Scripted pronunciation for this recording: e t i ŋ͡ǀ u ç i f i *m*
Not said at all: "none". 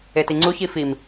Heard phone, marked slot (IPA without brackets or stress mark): m